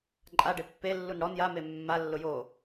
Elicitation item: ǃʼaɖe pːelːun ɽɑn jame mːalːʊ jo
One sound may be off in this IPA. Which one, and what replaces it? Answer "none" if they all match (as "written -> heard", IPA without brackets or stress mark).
ɑ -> ɔ